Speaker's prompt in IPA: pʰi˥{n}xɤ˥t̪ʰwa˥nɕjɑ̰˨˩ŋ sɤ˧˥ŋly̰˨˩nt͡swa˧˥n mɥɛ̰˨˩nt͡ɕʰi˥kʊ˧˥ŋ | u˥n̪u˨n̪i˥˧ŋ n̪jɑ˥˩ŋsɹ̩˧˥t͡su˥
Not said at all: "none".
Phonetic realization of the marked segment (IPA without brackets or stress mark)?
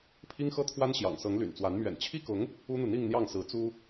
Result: ŋ